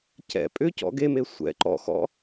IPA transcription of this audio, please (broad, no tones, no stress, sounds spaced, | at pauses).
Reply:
c ɛ̰ pʼ ʏ c ɔ̰ ɡ e m e sʷ ɛ̰ ǃ ɔ̰ x ɔ̰